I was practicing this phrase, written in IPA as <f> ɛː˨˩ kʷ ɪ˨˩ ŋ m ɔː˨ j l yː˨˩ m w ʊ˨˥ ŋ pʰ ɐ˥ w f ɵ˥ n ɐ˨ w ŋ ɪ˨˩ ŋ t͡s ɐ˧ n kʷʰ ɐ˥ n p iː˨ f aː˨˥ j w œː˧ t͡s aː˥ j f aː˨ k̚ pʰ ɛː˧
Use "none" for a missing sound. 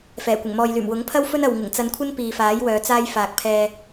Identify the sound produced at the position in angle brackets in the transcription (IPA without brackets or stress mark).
f